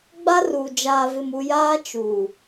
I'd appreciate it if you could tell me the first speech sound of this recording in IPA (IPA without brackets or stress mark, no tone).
ɡ͡b